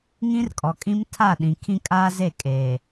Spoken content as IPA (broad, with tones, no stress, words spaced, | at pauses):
ŋĩ˦rkʼɔ˨kʼĩ˦m tʰa˦˨ɗĩ˨ kʰĩ˦kʼaː˦ze˦˨ kʼeː˨